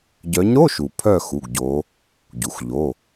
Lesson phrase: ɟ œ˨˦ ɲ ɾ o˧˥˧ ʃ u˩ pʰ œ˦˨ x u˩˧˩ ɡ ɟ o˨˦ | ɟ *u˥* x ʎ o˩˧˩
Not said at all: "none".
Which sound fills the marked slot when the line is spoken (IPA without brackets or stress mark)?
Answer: u˩